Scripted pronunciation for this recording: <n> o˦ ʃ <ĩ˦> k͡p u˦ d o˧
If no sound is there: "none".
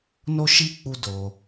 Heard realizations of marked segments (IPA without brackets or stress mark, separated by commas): n, i˦